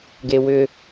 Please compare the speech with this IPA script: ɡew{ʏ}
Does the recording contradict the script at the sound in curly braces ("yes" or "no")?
no